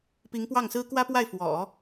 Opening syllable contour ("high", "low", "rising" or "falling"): rising